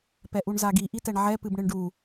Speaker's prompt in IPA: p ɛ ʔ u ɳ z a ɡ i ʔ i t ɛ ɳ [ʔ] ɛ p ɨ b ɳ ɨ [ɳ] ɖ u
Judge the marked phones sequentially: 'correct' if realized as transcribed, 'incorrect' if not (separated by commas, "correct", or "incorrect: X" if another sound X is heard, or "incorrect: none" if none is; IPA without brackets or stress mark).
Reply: incorrect: ʕ, correct